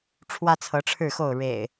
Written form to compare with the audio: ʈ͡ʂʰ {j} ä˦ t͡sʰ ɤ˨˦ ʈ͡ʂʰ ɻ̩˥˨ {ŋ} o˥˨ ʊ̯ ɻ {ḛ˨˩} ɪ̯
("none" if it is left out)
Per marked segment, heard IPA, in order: w, x, ḛ˨˩

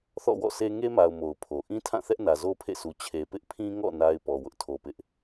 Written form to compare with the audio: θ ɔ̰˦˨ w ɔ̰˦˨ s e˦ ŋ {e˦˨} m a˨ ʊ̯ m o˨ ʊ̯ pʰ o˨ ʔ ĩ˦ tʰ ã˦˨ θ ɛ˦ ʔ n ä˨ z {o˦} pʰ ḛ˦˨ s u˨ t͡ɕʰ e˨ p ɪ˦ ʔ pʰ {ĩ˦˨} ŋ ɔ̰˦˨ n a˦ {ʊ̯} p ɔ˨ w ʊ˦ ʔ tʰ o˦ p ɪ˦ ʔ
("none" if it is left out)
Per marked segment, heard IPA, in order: e˦, o˦, ĩ˦, ɪ̯

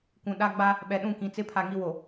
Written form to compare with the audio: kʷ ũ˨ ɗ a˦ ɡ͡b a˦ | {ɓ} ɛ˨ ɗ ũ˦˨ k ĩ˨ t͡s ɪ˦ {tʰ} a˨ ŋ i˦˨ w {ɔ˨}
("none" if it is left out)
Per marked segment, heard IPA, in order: ɓ, pʰ, o˨

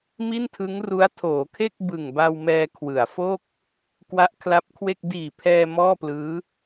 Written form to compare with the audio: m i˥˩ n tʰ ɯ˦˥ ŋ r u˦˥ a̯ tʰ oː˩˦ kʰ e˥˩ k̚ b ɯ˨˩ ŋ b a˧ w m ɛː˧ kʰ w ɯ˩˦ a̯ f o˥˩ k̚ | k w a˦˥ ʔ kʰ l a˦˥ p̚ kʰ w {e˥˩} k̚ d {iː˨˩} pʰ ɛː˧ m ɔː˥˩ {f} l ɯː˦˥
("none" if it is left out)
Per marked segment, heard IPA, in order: e˥˩, iː˨˩, p

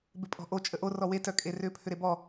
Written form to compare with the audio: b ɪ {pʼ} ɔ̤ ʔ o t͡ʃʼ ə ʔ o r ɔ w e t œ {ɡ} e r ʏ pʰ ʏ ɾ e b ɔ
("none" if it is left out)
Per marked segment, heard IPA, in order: pʼ, kʼ

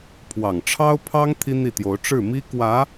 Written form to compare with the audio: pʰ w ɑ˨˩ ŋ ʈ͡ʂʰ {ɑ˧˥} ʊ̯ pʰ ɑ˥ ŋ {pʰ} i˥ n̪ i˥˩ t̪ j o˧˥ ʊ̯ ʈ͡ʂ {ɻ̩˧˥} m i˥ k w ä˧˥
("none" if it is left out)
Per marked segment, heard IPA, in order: ɑ˥, t̪ʰ, ɻ̩˥˩

